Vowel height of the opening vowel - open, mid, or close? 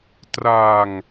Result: open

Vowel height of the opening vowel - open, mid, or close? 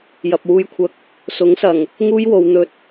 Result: open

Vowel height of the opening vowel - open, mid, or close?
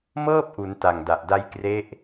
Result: mid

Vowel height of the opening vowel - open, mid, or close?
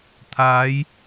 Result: open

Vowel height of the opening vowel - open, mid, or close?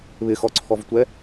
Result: close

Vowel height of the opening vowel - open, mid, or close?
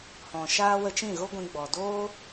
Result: mid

